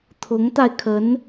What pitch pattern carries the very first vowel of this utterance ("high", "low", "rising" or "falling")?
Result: rising